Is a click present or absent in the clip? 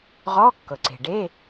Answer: present